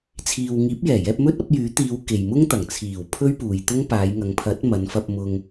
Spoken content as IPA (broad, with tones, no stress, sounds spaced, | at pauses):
t͡sʰ iː˨ w ŋ iː˨˥ p̚ j ɛː˨˩ j ɛː˧ p̚ m ɵ˥ t̚ ɐ˨˥ p̚ j yː˨˥ t̪ iː˨˧ w k e˨ j m ʊ˥ ŋ t̪ ɐ˨˩ ŋ t͡sʰ iː˨˩ w pʰ ɵ˥ ɥ p uː˨ j t̪ ʊ˥ ŋ p aː˨˧ j ŋ ɐ˨˧ ŋ pʰ ɐ˨˥ t̚ m ɐ˨˧ n f ɐ˧ p̚ m ʊ˧ ŋ